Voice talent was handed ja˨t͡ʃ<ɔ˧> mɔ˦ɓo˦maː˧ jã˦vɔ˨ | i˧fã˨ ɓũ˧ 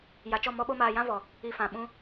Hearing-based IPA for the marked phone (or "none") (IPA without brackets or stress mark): ɔ˦˨